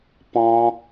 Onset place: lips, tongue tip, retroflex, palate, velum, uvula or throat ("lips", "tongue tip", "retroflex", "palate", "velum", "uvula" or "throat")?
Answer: lips